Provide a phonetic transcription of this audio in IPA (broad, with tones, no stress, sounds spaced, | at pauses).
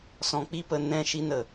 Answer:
s ɔ̃˨ k͡p i˦ p ə˨ n ɛ̃˦˨ ʃ i˦ n ə˨